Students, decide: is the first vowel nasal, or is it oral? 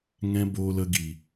nasal